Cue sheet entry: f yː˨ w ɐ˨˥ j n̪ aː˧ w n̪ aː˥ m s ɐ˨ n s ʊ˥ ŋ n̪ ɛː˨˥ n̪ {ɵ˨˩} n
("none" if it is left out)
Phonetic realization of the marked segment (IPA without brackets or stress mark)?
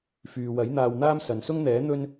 ɵ˥